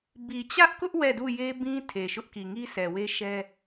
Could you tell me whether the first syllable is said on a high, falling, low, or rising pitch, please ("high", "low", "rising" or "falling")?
low